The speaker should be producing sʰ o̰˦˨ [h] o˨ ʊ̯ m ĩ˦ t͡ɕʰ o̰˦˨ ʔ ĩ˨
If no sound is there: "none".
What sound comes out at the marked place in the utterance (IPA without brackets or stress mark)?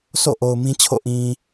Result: ʔ